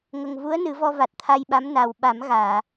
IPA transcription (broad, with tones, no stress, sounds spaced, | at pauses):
ŋ ə˨˩ ŋ v u˧˥ ə̯ n ɨ˨˩˦ v ɔ˧ v a˨˩ t̚ t̪ʰ a˧ j ɓ a˧˥ m n a˨˩ w ɓ a˨˩˦ m ɣ aː˨˩˨